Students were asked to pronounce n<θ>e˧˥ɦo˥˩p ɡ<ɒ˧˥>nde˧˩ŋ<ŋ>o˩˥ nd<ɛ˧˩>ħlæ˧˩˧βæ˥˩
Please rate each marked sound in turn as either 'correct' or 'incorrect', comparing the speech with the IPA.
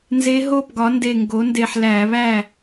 incorrect: z, incorrect: ɒ˩˥, incorrect: ɡ, incorrect: e˧˩

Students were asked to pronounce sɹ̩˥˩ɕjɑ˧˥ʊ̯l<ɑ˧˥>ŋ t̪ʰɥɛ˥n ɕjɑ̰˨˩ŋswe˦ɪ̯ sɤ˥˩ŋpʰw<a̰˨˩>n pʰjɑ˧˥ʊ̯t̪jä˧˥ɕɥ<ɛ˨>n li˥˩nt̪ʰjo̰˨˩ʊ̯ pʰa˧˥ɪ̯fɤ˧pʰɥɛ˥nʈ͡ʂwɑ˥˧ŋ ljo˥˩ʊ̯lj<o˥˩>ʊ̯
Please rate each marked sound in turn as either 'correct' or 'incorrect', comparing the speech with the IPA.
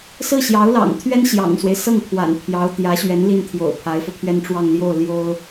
incorrect: ɑ̰˨˩, correct, incorrect: ɛ˧˥, incorrect: o˥

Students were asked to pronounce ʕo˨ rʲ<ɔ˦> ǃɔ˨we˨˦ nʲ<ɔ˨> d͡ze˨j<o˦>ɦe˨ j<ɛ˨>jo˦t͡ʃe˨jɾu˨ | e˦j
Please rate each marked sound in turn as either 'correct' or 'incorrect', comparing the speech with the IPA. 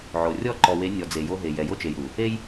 incorrect: ɔ˦˨, correct, correct, correct

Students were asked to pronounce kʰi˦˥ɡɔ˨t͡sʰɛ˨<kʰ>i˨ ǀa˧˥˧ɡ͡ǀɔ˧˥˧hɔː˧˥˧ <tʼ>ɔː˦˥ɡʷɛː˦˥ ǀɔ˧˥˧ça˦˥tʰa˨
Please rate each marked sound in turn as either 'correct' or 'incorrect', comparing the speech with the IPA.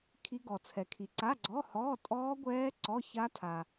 correct, correct

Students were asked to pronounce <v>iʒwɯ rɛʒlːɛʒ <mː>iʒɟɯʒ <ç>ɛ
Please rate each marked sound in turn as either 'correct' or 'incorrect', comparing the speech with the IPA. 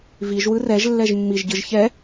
correct, correct, correct

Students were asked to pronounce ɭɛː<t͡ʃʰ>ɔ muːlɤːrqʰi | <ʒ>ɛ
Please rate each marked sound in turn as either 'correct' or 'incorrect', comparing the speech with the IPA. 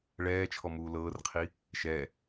correct, incorrect: ʃ

